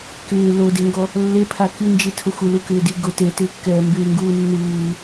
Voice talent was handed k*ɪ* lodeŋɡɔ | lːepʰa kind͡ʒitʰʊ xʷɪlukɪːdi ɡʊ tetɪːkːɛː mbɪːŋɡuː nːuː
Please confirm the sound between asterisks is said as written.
no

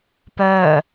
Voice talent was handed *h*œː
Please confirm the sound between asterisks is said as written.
no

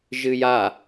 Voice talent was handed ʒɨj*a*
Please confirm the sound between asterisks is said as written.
yes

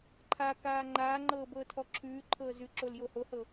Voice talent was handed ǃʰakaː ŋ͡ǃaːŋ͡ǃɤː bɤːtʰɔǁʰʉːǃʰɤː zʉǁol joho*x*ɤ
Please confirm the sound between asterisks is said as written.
no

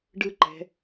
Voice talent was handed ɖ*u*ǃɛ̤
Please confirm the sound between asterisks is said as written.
no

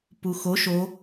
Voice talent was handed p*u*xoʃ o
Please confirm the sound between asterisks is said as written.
yes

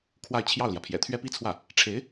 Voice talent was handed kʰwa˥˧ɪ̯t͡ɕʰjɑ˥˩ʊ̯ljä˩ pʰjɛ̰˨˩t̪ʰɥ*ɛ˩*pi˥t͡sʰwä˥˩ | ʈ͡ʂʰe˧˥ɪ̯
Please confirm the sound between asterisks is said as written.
no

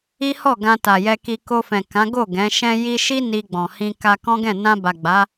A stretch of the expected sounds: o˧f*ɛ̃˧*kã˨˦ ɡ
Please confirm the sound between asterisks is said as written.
no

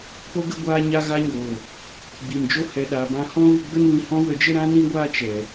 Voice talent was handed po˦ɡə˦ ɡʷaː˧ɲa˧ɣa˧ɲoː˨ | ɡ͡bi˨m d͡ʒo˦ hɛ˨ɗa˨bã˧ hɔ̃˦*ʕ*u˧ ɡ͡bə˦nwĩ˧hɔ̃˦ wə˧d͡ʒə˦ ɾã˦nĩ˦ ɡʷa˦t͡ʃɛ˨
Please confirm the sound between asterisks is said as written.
no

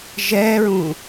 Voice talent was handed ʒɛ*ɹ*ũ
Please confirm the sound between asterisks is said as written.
yes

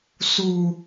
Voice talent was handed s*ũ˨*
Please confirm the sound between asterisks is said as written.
no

